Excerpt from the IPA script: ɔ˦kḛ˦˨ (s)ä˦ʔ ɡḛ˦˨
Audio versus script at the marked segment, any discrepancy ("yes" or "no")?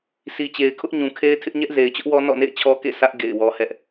no